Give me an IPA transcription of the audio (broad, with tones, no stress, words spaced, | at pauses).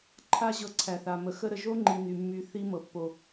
ǃʰa˦ ʑɤ˧ǀʰæ˨θa˨ mə˨xə˦ ɾə˨ʒo˦ŋ͡ǃi˨ ny˨mːy˧θi˦ mɤ˨pːo˨